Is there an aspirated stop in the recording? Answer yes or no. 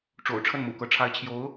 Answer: yes